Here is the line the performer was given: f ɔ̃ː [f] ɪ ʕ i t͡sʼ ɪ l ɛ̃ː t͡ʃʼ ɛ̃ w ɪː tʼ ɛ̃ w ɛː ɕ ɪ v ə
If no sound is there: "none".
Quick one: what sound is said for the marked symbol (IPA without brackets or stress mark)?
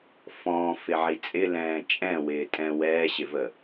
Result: f